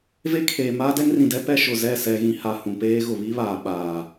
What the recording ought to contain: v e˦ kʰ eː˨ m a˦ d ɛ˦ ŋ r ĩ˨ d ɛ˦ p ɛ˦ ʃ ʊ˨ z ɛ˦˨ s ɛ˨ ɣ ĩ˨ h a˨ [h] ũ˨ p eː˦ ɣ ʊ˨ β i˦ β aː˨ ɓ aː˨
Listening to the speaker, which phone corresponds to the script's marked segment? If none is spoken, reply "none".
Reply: h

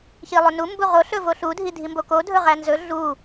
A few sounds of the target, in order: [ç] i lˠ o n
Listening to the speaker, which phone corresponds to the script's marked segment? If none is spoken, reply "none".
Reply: ç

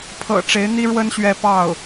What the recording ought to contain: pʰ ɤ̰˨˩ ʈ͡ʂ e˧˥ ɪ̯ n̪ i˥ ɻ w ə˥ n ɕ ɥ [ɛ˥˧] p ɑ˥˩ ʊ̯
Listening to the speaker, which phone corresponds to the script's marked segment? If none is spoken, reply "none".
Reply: ɛ˥˧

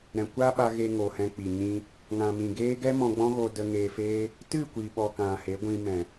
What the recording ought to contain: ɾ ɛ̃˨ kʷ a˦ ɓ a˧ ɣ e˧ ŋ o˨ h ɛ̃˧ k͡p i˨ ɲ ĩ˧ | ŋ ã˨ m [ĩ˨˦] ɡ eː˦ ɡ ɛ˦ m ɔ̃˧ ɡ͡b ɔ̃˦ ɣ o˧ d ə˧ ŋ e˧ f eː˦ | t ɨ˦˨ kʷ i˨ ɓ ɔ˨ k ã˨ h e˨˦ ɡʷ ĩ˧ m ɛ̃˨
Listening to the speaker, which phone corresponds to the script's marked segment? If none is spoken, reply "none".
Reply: ĩ˨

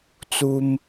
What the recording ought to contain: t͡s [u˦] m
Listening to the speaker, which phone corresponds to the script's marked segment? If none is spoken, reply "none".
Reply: u˦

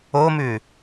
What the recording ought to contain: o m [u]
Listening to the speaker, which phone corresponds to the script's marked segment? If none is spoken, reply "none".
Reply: ʉ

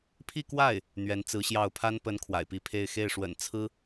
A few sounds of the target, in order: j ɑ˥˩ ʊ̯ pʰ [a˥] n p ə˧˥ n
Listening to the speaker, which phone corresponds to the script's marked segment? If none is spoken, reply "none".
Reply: a˥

